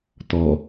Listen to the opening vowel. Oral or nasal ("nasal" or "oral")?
oral